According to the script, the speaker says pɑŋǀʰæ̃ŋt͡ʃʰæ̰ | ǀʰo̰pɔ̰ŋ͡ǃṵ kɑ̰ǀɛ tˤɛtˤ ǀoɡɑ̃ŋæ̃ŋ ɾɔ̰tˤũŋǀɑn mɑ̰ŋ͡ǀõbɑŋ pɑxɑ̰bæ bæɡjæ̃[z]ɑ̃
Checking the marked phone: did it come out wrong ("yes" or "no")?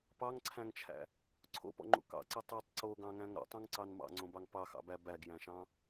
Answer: yes